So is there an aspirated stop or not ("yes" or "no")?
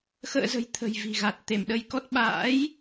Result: yes